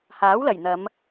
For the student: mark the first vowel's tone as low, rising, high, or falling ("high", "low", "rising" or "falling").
rising